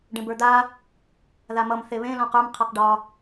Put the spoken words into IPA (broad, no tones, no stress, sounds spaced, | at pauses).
ɖ ẽ b ə˞ d̪ a | ð a m ʌ m θ e β ẽ l ɔ̃ q ə˞ m qʰ ʌ q ɖ ɒ